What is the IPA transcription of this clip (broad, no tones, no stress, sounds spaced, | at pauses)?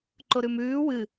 ǃ o ɾ ʉ m ʉː w ɨ